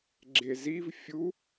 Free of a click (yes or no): no